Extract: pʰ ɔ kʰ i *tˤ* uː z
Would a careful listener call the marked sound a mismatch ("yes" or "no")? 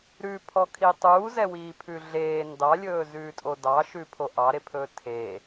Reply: no